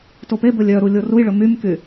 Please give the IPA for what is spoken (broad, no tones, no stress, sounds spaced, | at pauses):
t o p e b ɵ lʲ œ ɾ u lʲ o r u j ɭ ɵ m y m k y